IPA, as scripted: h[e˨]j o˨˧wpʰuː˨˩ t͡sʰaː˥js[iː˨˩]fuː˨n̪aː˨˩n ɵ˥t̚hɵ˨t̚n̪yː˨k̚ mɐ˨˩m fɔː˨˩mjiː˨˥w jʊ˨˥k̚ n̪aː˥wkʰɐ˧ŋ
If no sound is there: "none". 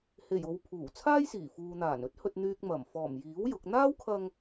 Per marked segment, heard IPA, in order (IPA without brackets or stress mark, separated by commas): e˨˩, iː˨˩